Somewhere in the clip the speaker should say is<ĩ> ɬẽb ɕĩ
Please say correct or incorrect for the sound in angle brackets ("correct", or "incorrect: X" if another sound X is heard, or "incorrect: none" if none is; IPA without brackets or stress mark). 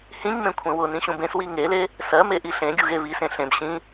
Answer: incorrect: ẽ